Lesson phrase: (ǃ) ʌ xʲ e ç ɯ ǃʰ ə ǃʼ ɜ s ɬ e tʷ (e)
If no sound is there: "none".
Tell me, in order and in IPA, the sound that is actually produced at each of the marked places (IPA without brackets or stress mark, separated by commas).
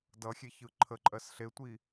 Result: d, i